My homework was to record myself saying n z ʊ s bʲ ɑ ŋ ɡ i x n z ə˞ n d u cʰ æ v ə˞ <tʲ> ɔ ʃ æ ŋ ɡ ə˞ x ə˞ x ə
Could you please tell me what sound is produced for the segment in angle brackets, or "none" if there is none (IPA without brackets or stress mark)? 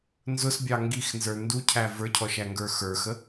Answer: cʰ